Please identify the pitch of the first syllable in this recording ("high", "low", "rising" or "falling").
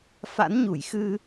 rising